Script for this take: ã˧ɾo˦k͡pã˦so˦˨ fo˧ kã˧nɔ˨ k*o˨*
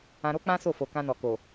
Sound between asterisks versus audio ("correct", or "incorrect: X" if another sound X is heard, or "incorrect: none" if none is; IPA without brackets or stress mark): correct